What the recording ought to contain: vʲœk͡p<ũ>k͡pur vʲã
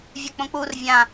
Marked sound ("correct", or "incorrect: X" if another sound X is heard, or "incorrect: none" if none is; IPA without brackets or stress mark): incorrect: õ